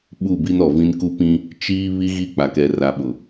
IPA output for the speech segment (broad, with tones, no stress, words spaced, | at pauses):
ɓu˦˨bi˦n ɔ˨vĩ˦n ku˦pĩ˦ | t͡ʃiː˦ βi˦ɣi˦˨k͡pa˨kɛ˨ ra˨ɓʊ˨